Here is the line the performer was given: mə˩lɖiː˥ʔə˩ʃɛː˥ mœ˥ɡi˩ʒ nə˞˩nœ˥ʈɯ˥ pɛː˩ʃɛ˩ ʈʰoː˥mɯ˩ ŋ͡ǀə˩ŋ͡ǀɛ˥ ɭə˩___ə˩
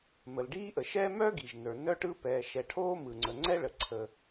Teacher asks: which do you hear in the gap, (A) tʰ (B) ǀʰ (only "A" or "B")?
B